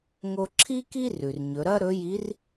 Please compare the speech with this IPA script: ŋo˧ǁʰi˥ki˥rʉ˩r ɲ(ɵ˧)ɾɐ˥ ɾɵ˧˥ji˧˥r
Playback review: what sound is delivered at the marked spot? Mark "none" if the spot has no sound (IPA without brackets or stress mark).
ɵ˩˧